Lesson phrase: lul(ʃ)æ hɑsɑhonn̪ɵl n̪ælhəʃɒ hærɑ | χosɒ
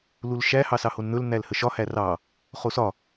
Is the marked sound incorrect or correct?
correct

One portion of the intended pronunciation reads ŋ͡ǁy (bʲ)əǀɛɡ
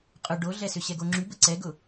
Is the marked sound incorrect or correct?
incorrect: b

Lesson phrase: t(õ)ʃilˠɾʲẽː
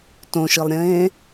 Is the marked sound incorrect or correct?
correct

